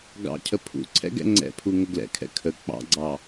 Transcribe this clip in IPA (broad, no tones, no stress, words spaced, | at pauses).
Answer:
ɡɑ̰cʰə pʰṵ ǀʰɛ̰ɡɛ̰ŋ͡ǀɛ̰pʰu ŋəɡlɛ̰kʰɛ̰ kʰə k͡pɑ̰ɡ͡ǀɑ